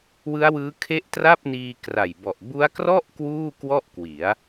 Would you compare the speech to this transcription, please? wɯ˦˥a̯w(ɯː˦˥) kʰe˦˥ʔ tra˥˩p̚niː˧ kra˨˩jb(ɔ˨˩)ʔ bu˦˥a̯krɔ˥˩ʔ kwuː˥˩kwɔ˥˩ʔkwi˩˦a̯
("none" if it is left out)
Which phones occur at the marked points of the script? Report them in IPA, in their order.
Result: ɯː˦˥, ɔ˨˩

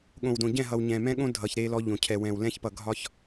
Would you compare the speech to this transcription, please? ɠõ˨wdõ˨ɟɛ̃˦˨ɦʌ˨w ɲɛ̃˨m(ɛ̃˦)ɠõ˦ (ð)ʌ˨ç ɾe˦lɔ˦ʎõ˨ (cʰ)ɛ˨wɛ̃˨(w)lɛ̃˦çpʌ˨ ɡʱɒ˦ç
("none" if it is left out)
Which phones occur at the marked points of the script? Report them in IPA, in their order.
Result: ɛ̃˦, dʱ, cʰ, w

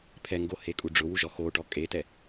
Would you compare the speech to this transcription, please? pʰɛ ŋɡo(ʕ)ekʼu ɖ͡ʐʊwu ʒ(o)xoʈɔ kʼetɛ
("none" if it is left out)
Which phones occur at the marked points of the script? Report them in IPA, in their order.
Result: h, ɔ

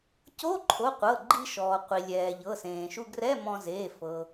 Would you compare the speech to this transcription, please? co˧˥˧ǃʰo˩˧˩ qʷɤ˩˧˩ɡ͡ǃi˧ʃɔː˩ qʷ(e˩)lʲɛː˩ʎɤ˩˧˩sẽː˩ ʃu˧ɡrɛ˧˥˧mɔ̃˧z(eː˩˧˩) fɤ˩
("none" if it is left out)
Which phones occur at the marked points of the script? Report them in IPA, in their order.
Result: i˩, eː˩˧˩

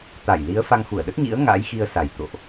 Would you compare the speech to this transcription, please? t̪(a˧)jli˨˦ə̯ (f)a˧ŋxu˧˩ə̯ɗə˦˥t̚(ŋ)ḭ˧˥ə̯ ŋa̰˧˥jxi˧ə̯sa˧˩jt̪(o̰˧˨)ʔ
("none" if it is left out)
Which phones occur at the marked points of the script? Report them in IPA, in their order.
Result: a˧˩, f, ɲ, o̰˧˨

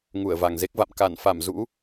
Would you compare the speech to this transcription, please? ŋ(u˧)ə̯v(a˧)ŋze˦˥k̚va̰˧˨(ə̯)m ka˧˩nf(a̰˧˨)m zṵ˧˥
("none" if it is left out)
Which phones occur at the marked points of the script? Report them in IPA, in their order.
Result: u˧˩, a˨˩, none, a˧˩

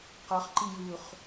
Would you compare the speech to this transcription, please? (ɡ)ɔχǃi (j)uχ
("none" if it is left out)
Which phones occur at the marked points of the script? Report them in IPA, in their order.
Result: q, j

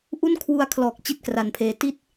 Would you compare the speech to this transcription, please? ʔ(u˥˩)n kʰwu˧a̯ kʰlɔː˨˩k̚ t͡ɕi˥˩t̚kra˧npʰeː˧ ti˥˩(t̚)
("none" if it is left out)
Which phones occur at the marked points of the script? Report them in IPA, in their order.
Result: u˥˩, t̚

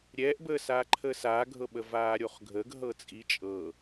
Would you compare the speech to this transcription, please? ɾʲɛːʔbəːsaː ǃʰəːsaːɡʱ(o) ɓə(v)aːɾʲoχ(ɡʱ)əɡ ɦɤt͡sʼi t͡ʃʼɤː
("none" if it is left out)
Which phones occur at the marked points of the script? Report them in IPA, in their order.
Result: ɤ, v, ɡʱ

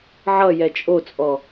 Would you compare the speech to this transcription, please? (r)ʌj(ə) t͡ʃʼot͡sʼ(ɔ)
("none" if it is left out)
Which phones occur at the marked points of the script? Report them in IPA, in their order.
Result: ʕ, ɛ, ɔ

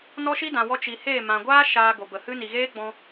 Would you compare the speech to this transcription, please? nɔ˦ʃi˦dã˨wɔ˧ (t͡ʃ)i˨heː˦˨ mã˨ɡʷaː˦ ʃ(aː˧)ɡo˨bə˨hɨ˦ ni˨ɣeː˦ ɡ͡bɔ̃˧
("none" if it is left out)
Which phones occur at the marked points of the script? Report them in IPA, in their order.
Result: t͡ʃ, aː˧

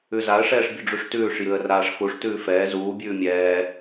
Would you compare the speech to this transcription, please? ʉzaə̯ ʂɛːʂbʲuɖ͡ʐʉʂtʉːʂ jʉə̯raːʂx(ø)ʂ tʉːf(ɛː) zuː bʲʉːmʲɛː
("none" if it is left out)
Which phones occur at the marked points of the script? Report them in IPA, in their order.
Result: u, ɛː

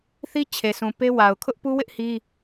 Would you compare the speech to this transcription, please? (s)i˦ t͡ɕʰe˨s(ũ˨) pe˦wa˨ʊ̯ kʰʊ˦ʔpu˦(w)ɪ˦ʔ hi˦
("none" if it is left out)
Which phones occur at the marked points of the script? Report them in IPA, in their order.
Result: θ, ũ˨, w

